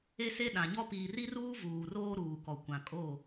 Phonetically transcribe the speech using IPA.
e˦ s e˦ ɗ ã˨ ɲ ɔ˦ p iː˨ r i˦ r uː˦ v uː˨ r oː˦ ɾ uː˨ k ɔ˨ kʷ ã˨ kʼ o˦˨

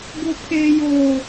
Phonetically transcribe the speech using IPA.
ɡ ʊ˦ pʰ e˦ j o˦

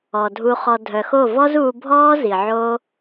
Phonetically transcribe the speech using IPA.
ɔ˨ dʱ u˧ χ ɔ˧ dʱ œ˨ x o˦˨ v ɔ˦ z uː˧ bʱ ɔː˦ z i˨ ʕ o˦

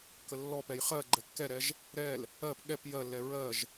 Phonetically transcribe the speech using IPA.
k ə lː ɔ p ɛ j χ ɜ ɡ͡ǃ ɛ kː ɛ ɾ ɛ ʒ | ɾ ɛ l | ɜ p ɠ ɛ p j ɜ lː ɛ ɹ ɜ ʒ

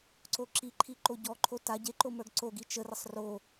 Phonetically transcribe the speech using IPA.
ǀ o ǁ i ǃʰ i ǃ o ɟ ɔ ǃʰ o t a ɟ e ǃ o m ə˞ ɡ ǀ o ɡ i t͡ʃ ə r ə sˤ r o

